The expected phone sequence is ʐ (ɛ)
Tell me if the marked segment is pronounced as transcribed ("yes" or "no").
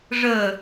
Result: no